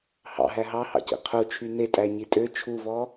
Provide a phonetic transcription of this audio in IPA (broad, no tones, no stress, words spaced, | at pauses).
hɑ̰ɦæ ɦɑhɑ̰cḭ qʰut͡ʃʰy netʼæɲi tʼø t͡ʃʰuvɔ